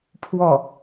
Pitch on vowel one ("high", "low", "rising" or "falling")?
falling